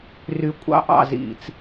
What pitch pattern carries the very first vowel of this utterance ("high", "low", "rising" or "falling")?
low